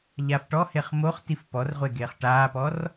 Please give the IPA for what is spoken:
ʎ a f ʈ ɔ h e χ m o χ t i f p ɔ r ʁʷ e ɡ eː χ ʈ aː p ɔ r

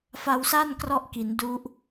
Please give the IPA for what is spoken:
f a˧ w s a˥˩ n k r ɔ˦˥ ʔ k i˩˦ n d u˦˥ ʔ

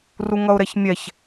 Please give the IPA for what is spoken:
r u ŋ ʌ ʊ̯ ɾ ɛ ç mʲ ɛ ç

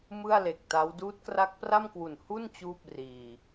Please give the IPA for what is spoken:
m ɯ˥˩ a̯ l e˨˩ k̚ t a˦˥ w d uː˦˥ t̚ k r a˦˥ k̚ p r a˥˩ m k w u˨˩ n h u˥˩ n t͡ɕ uː˥˩ p̚ r iː˧

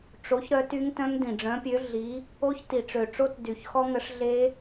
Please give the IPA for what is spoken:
ʈ͡ʂ o˨˥ ç ɾ œ˨˥ t y˦˥ ŋ t œ̃˦˥ ŋ d ĩ˨˩ ɖ͡ʐ œ̃˨˥ pʲ ø˨˥ ɮ i˨˥ | o˦˥ ç t i˨˩ ʈ͡ʂ ø˨˩ ʈ͡ʂ o˦˥ t d y˨˩ ç x ɔ˦˥ ŋ ə˨˥ ʂ ɮ e˦˥

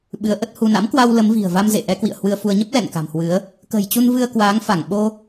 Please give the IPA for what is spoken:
ɓ ɨ˨˦ ə̯ ʔ ə˦˥ t̚ h u˧ n a̰˧˥ m k w a˧ w l ə˨˦ m v i̤˨˩ ə̯ v a˧ m z ḛ˧˨ ʔ ɛ˨˦ k w ḭ˧˨ ə̯ h w ɨ˧ ə̯ f u˧ ə̯ ɲ ə˦˥ p̚ l ɛ̰˧˨ n k a̤˨˩ m h w ɨ˨˦ ə̯ | k ə̤˨˩ j t͡ɕ u˧ n v ɨ˧ ə̯ k w aː˨˦ ŋ f a˧˩ ŋ ɓ o˧

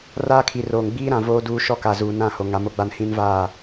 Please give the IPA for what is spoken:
r aː˦ kʰ i˨ r oː˨ ŋ ɡ͡b iː˦ ɾ ã˨ v oː˦ d uː˦ ʃ ɔ˦ k a˨ z uː˨ n ã˦˨ h o˨ ŋ a˨˦ m o˦ ɡ͡b a˦ n h ĩ˦ n v aː˦˨

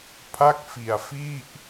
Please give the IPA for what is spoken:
pʰ a˥˩ k̚ f i˧ a̯ f i˥˩ ʔ

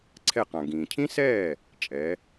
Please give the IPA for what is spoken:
ǀʰ ɛ˥˩ q ã˩ ɡ ĩː˩ cʰ ĩ˥ s ɛː˥˩ | t͡ʃʼ ɛ˩˥

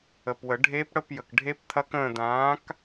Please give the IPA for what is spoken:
ə˨ p w ə˨˩˦ ɖʱ eː˦˥ p ɽ ə˧˥˧ p j ə˨ k ɖʱ e˦˥ p t̪ʰ ɐ˦˥ k ə̃ː˦˨ d̪ ãː˨˥ k

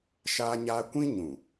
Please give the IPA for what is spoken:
ʃ aː˦ ɲ aː˦ kʷ ĩ˦ ɲ ũ˨

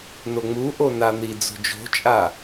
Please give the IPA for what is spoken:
n o ŋ͡m u ʔ o n a n̪ i d͡z o̤ d͡ʒ o̤ t͡ʃʼ a

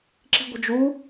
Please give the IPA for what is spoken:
ǁ i̤ ɡʷ ə̤ d͡ʒ u

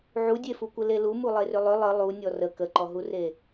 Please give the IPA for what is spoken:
ʕ u dʲ e f u kʷ ɘ l e l u m u lˠ e r ʏ lˠ ʏ lˠ ə lˠ u nʲ ɔ r ə k ə ǃ ɔ ɦ u r e

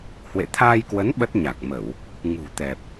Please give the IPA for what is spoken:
h w ḛ˧˨ t̪ʰ aː˧ j k w ə˨˦ n ɓ ə˦˥ t̚ ɲ a˨˩ k̚ m ə˧˩˨ w | ŋ ṳ˨˩ t̪ ɛ˨˩ p̚

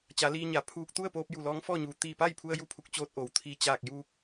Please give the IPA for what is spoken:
t͡ɕ a˩˧ l iː˧ ɲ a˩ pʰ uː˧ k̚ t̪ u˥˨ ə̯ p oː˧ p̚ j u˧˩ l ɔː˧˥ ŋ f ɔː˥˨ ɲ uː˩ t̪ iː˧˩ p a˥˨ j pʰ u˧ ə̯ j u˥˨ pʰ u˧˥ k̚ t͡ɕ oː˧ t̚ ʔ oː˩ w t̪ʰ i˧˩ t͡ɕ aː˧˩ k̚ j uː˧ k̚

